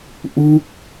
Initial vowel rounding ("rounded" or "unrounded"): rounded